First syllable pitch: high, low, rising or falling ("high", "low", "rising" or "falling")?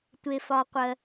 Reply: low